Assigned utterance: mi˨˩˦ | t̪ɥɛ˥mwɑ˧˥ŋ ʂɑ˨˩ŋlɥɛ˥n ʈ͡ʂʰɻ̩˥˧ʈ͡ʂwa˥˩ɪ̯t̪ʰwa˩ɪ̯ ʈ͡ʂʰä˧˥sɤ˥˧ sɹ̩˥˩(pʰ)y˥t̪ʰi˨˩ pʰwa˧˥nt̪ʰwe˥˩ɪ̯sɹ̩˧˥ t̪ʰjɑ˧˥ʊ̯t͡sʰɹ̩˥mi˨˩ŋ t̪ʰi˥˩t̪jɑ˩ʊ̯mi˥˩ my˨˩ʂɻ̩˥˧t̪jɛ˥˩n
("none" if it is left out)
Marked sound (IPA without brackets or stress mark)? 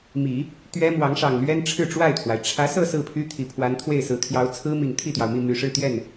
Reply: pʰ